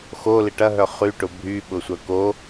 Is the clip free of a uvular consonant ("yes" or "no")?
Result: no